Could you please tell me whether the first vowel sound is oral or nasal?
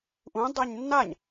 nasal